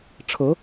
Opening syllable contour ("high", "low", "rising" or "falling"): rising